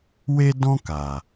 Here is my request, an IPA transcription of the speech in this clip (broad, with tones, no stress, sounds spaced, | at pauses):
w e˦ d ɔ̃˦ k aː˨